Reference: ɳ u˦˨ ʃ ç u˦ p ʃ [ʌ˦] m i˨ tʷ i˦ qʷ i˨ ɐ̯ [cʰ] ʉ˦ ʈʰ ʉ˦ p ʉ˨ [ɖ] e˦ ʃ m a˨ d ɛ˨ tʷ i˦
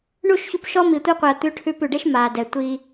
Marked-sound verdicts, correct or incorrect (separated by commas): incorrect, incorrect, correct